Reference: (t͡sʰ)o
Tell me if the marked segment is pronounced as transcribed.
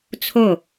yes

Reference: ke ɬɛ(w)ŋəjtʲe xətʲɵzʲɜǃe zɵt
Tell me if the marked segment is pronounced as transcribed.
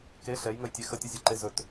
no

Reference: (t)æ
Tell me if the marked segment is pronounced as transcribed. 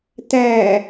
yes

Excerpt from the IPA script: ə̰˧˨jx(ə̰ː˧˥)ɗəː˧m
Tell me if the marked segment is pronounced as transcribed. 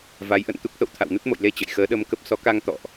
no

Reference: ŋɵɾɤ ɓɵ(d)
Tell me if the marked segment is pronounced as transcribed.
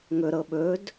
yes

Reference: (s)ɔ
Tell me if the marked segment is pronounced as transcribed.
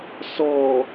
yes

